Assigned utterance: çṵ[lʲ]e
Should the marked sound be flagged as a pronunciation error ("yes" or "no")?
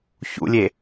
no